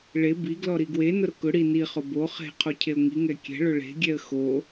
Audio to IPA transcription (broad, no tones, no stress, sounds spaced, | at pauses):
ɭ e b i ɡ l ɔ ɾ i ɡ w e n ʊ ɾ ʊ k ʊ ɽ i n i χ ʊ b o χ e̤ qʰ o cʰ e ʊ̯ ŋ i ŋ ɛ kʲ ɛ̤ ɭ ʊ ɭ e̤ ɡʲ ɛ ə̯ x o